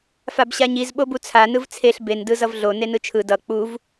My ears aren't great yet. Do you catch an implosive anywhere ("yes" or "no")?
yes